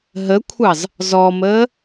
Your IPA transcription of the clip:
ɦ ə kʷʰ ɑ z | z ɔ m əː

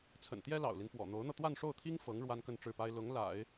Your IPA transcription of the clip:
t͡sʰ ə̰˨˩ n t̪ j ɛ˥ l ɑ̰˨˩ ʊ̯ l i˦ n p w ɔ̰˨˩ n̪ o˧˥ ʊ̯ n̪ ɤ˧ t̪ w a˥˧ n ʂ o˥˩ ʊ̯ t̪ʰ i˥ ŋ f ɤ˧˥ ŋ ɻ w a˥ n k ə˥˧ n ʈ͡ʂ ɻ̩˥˩ p a˥ ɪ̯ l ʊ˧˥ ŋ l a̰˨˩˦ ɪ̯

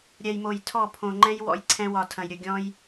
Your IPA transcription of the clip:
ɾʲ ɛ˨ j m o˨ j tʰ ɔ˦˨ pʰ õ˧ ŋ͡ǃ ɛ̃˦ j w ɔ̰˧ j ǀʰ ɛ̃˦ w ɒ˧ tʰ ɐ̃˧ j ɾʲ ɵ˧ ɡʲ ɔ̃˦ j

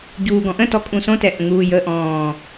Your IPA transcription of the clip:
ɟ uː ɡ ɔ̃ ʔ ə̃ t ɔ kʼ ũ s õ t ɛ ʔ ə̃ ŋ uː j ə ʔ ɔ̃ː

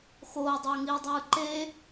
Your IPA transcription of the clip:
x oː dˤ ɯː ŋ iː dˤ ɯː ǃ e

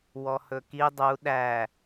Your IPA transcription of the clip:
w ɔ h ɵ k i dˤ u ɗ æ

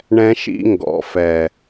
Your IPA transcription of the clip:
ɳ ɛ̃˦ ʃ ḭ˦ ŋ ɡ ɔ̰˨ f ɛ˨

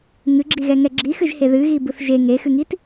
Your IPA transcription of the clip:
ŋ ɨ ɡ͡ǁ i ɣ ɛ ŋ ɛ ɡ͡ǁ i x ɨ ʒ h e ð ɨ ɣ i b ɯ θ ʒ e ŋ e x ɨ ŋ i t

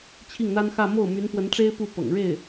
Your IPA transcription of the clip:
t͡ɕʰ i˥˩ ŋ n̪ a˥ n x ä˥˧ m o˥˩ ʊ̯ m y˧˥ n p w ə˧˥ n ʈ͡ʂ e˥ ɪ̯ p u˥˩ p ɤ̰˨˩ ŋ ɻ e˥˩ ɪ̯

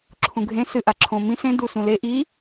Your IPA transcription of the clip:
ǁʰ ũ ɡʱ ẽ s ɨ ʔ a ǁʰ õ m ĩ s ẽ d u s ũ l e ʔ i

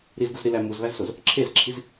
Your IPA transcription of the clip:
ɾ i z ɡ u z ɾ i l æ m u z β æ z s o z | ǁʰ e z ǁʰ i z

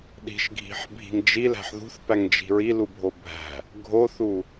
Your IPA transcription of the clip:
ɗ i̤ ʃ ɡʱ i̤ ħ bʱ i̤ ŋ d͡ʒ i l æ̤ ħ ð ṳ θ p æ ŋ d͡ʒ i̤ ɹ i l u bʱ o bʱ æ̤ | ɡʱ o θ u

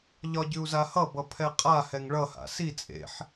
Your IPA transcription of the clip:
ʎ ɒ ɟ ʉ u̯ z a h ʌ b ʌ pʰ ɛ qʼ a h ɛ ŋ ɭ ʌ h a̰ s i t͡sʼ ḛ ħ

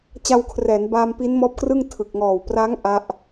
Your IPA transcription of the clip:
t͡ɕ a˧ w kʰ r ɛː˩˦ n b aː˧ m p i˦˥ n m ɔː˦˥ p̚ k r ɯ˥˩ ŋ tʰ ɯ˨˩ k̚ ŋ ɔː˨˩ w p r a˦˥ ŋ ʔ a˦˥ ʔ

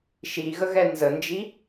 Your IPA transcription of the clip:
ʃ i ɣ ə ɣ ɛ n z ə n d͡ʒ i

